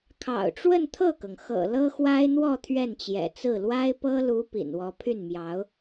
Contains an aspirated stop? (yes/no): yes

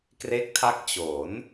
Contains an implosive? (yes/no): no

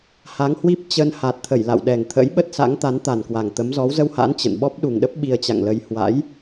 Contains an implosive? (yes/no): yes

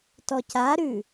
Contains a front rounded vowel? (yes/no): no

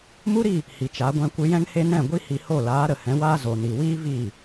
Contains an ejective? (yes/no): no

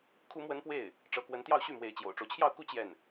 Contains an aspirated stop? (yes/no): yes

